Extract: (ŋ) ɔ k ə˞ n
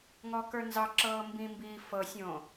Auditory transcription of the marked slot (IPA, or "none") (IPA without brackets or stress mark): ŋ